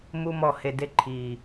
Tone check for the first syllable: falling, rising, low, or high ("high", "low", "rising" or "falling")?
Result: high